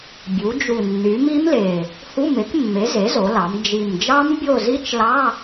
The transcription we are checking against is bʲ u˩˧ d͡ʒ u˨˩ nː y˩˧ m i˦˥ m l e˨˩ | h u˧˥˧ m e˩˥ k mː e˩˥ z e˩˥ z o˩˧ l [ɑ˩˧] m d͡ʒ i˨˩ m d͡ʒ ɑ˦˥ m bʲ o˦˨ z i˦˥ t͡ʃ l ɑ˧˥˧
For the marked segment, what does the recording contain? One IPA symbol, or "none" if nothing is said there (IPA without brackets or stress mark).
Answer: ɑ˩˧